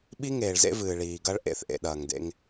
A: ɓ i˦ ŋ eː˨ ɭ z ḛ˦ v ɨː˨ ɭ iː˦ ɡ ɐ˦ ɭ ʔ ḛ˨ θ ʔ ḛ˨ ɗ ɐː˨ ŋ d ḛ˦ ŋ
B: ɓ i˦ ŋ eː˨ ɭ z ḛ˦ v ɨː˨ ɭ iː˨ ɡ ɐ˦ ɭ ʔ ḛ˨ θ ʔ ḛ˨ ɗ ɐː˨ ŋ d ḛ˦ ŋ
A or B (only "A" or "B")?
B